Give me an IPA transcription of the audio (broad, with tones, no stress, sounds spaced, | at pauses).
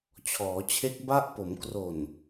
t͡ɕʰ ɔː˩˦ t͡ɕʰ e˦˥ k̚ b a˦˥ ʔ p o˩˦ m k r o˨˩ n